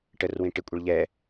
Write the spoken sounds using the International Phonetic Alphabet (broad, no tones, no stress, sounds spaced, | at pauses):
ʈ ə r w ĩ ʈ ɪ kʷʼ ɛ ɭ ʎ ɛ